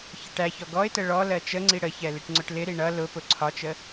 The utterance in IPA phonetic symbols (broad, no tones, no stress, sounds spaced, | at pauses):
ç ə ʈ æ ç ɔ ɡ ɔ ɪ̯ t ə ɭ ɔ l ɜ t͡ʃ ə ŋ͡ǀ i ɽ ə ç ɛ l i ʈ ŋ͡ǀ ʊ ʈ l ɪ ɾ i ɳ ʌ l ʊ p ʊ ǀʰ ɒ t͡ʃ ə